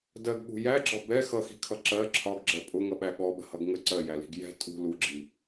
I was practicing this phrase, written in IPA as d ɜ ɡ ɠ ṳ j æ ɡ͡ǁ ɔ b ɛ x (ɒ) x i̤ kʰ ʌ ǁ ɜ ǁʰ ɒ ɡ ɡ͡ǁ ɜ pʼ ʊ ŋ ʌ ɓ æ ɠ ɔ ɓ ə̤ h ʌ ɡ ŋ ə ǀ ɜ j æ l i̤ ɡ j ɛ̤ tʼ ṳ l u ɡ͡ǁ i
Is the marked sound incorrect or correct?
incorrect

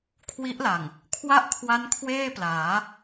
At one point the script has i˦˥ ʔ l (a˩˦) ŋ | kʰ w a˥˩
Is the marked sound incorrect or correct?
incorrect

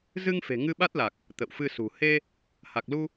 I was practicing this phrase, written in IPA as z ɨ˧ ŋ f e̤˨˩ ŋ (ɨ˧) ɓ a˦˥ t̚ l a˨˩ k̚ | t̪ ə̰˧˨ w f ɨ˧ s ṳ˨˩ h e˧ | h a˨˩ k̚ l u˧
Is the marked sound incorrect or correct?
correct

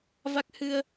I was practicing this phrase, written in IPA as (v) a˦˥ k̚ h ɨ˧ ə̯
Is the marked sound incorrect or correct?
correct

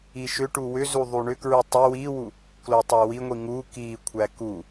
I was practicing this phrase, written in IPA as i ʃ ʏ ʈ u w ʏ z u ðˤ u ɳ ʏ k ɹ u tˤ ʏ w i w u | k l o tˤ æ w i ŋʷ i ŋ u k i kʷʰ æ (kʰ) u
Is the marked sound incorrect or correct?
incorrect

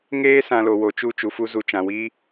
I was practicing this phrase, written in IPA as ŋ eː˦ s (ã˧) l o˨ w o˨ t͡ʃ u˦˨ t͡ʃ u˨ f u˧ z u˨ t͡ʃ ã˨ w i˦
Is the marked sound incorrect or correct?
correct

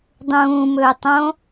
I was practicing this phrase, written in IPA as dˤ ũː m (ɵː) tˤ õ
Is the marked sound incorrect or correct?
correct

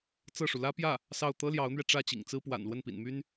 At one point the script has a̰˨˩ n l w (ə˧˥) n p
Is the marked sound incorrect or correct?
incorrect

